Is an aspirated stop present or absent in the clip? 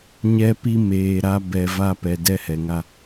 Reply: absent